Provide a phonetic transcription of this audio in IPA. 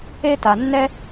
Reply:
e˦ta˧nːɛ˦

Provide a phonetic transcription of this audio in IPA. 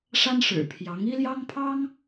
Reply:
ʂa˥nʂɻ̩˨˩pʰjɑ˧˥ŋ i˥ljɑ˥ŋpʰɑ˥ŋ

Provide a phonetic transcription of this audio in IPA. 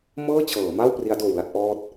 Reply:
mɤː˥˩t͡ɕʰɤː˩˦ma˥˩w pri˦˥a̯doː˨˩wla˥˩t̚ ʔɔː˥˩t̚

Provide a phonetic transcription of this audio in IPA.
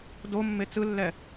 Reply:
domːe t͡sɯlːɛ

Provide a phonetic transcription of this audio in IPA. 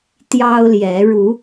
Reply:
t̪jɑ˦ʊ̯ljɛ˨˦ ɻu˨˦

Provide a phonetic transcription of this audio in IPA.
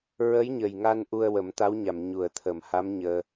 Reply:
ɹə˧˥jɲə˨˩jŋa˧n ʔu˧ə̯wə˨˩˦mt̪a˧˥wɲa˨˩˨m ɲu˨˩˨ə̯t̪ʰə˨˩˨mha˧˥m ɲəː˧

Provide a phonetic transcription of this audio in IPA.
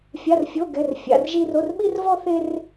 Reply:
fʲa˧˥˧rfʲo˧˥˧ ɡɛ˧˥˧rfʲa̰˧˥˧r ʒi˥r o˧˥˧rɓi˥rvɔ˥θe˥r

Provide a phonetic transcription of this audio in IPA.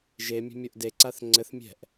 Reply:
ʒemʲe̤mʲoʔ deǀaθ ŋ͡ǀɘθmʲɛ̤ʔ

